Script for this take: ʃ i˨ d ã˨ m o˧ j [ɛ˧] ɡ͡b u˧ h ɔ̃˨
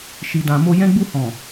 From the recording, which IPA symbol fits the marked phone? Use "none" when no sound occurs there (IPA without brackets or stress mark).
ɛ̃˧